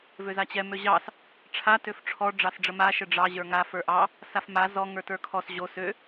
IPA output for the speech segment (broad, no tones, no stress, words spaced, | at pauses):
vøzat͡ɕɛ møʑɑs | ʈ͡ʂʰa tøfʈ͡ʂʰɔ ɖ͡ʐɑsɖ͡ʐəma ʃəɖ͡ʐɑ ʑə˞ŋa fə˞ʔɑ | safma zɔ ŋə˞tə˞kʰɔs ʑo sø